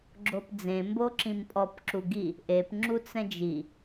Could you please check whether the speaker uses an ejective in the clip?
yes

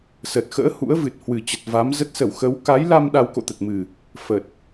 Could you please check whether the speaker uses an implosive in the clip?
yes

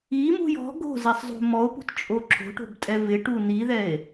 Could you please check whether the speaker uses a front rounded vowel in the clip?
no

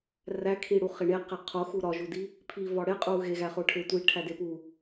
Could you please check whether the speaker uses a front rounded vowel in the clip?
no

